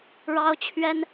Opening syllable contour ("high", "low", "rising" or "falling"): high